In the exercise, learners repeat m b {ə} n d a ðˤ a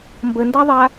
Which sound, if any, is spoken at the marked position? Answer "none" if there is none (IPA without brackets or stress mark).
ə